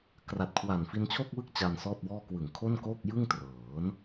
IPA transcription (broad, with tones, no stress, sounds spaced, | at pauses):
k r a˨˩ t̚ kʰ w a˨˩ n f i˧ n t͡ɕʰ o˥˩ k̚ w ɯ˥˩ k̚ t͡ɕ a˧ n s ɔː˥˩ t̚ w ɔː˥˩ k w ɯ˨˩ ŋ kʰ o˥˩ n k oː˥˩ k̚ j ɯ˥˩ ŋ t r ɤː˩˦ n